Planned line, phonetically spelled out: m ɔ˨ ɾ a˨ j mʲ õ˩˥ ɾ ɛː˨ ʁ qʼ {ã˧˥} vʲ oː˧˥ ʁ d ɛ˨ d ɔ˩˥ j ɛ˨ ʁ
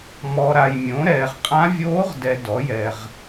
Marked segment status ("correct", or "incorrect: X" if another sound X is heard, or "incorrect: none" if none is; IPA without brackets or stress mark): correct